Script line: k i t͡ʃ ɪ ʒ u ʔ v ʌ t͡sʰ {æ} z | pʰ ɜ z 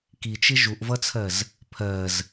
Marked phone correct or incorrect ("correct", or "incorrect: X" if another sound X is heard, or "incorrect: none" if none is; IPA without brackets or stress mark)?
incorrect: ɜ